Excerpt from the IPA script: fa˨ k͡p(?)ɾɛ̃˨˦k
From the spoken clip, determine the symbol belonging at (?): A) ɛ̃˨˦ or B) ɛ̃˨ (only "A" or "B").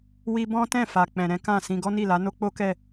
B